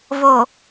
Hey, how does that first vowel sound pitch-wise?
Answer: low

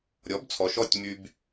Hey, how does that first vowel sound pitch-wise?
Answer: rising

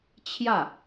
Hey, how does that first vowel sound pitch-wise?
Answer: falling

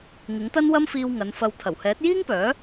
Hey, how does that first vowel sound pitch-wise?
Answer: rising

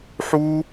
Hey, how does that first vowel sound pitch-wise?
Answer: high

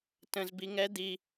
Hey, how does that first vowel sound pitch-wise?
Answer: high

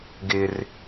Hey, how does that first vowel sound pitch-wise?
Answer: high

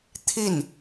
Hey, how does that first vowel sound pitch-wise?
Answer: falling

